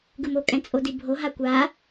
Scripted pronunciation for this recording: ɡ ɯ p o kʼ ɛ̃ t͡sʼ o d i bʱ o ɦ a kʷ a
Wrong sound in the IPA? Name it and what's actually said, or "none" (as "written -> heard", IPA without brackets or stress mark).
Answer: p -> m